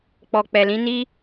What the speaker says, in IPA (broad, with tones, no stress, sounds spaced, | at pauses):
k͡p ɔ˨ k͡p ɛ˨ l ĩ˨˦ n i˦